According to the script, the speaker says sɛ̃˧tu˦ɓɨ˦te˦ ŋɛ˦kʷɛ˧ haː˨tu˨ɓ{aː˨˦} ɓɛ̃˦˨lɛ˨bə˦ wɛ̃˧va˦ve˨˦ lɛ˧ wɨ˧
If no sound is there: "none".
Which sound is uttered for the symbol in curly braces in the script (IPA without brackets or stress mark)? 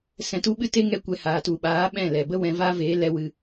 aː˨˦